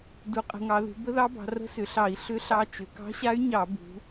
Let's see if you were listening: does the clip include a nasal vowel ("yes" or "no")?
no